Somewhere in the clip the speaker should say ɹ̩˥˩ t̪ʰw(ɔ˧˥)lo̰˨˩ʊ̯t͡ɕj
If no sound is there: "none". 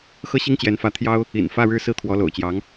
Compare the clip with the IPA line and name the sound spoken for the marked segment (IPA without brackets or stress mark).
ɔ˧˥